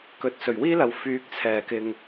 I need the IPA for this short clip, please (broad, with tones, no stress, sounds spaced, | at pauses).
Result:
k ɵ˨˥ t̚ s ɵ˨˩ ɥ w iː˥ l ɐ˨ w f yː˨˥ k̚ t͡sʰ ɛː˨˩ k ɪ˨ ŋ